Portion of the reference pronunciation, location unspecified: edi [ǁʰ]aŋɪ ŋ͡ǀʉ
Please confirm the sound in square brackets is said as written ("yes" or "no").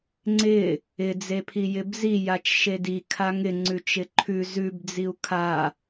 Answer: no